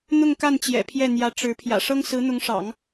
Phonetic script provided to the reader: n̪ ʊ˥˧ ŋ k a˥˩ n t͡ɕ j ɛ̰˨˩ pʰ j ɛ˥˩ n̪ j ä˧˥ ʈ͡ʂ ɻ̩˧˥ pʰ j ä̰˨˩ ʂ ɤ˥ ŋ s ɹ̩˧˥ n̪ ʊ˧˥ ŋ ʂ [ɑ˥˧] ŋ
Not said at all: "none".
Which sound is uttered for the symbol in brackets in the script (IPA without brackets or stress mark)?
ɑ̰˨˩˦